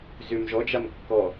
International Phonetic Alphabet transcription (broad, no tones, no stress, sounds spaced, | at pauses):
z ø m ʒ ɔ d͡ʒ a m kː ɔ